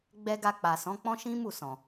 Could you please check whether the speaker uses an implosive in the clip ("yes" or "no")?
no